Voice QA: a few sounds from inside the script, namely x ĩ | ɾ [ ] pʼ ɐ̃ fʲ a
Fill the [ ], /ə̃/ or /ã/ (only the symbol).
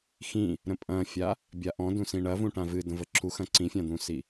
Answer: ə̃